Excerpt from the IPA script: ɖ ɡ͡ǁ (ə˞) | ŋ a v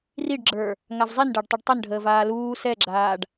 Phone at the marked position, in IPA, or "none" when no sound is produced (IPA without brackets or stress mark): ə˞